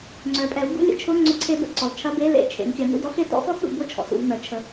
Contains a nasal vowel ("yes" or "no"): no